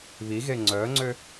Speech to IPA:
β i ɣ e ŋ͡ǀ œ ŋ͡ǀ ø

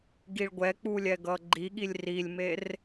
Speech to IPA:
ɡ i ɭ ɡʷ ɛ k͡p u lʲ ɛ ɡ ʌ ɡ͡ǃ i ɠ i lʲ r i lʲ m e r

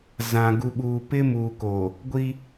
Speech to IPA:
z ã˨ ɡ u˨ ɓ uː˨ p ɪ˦ m uː˨ k o˨ | ɡʷ i˦

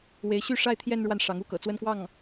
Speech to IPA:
w e˧˥ ɪ̯ ɕ y˥˧ ʂ a˥˧ ɪ̯ t̪ʰ j ɛ˥˧ n ɻ w a˥˩ n ʂ ɑ˧˥ ŋ u˥ k ɤ̰˨˩ t͡s w ə˥ n k w ɑ˥˩ ŋ

